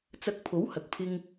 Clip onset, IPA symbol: t͡s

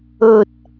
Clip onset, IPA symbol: ɵ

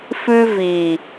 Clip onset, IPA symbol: f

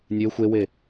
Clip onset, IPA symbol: nʲ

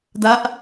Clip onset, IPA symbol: d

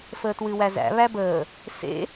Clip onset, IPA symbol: f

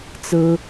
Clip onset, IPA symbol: t͡s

